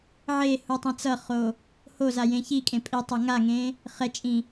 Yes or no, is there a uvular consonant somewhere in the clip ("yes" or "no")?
yes